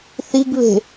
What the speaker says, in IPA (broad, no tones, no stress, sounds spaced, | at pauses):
θ i ɡ β e̤